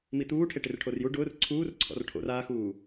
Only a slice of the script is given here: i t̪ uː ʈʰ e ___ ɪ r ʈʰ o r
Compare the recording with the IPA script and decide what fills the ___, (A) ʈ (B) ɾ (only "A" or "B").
A